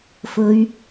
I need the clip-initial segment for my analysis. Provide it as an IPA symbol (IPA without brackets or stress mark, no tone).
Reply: f